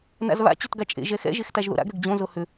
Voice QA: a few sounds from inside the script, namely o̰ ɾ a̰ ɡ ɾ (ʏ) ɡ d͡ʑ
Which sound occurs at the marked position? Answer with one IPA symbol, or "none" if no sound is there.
ʏ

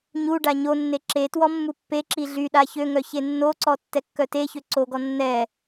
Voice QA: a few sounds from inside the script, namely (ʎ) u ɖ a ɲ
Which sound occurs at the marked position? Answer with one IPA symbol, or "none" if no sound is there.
ɲ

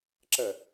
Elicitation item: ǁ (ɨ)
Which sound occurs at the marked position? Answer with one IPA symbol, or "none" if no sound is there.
ə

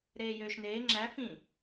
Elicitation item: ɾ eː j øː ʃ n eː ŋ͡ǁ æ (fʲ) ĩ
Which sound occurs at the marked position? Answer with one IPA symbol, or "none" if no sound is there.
f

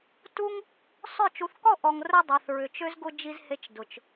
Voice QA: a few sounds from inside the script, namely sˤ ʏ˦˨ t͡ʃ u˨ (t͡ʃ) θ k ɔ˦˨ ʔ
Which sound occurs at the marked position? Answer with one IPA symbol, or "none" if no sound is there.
none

